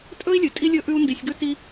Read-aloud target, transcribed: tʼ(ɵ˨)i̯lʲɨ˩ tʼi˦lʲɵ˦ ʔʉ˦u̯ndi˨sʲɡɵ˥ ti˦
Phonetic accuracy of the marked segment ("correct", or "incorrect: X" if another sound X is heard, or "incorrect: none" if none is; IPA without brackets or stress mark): incorrect: ɵ˥